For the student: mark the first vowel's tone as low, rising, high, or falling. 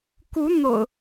rising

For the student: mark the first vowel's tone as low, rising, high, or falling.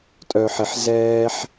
low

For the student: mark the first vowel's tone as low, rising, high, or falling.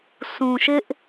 low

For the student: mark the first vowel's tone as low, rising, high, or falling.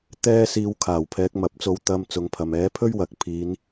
high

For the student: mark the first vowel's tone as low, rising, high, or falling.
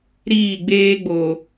falling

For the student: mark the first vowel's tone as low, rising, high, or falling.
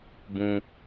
high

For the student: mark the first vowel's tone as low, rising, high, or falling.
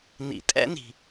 low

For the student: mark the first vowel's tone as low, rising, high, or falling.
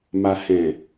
low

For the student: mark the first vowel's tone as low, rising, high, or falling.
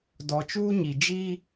low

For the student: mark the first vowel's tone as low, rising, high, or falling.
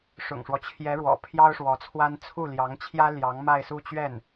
low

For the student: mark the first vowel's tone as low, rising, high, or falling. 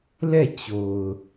falling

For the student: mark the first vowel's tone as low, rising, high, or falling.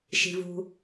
low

